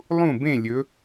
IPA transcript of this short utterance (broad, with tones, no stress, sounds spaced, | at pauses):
lˠ ũ˥˨ b ẽ˥˨ lʲ ɵ˨˦